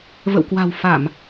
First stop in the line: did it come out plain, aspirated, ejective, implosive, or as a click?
plain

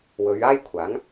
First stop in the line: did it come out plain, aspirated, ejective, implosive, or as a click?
aspirated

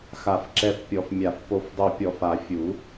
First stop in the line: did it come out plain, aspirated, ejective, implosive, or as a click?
click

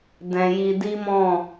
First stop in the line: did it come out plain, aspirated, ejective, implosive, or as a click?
plain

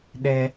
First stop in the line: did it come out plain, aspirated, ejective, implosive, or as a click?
implosive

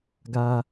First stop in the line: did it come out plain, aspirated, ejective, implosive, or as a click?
plain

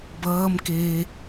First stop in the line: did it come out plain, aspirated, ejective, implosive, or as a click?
plain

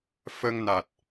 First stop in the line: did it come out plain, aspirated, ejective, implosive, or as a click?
plain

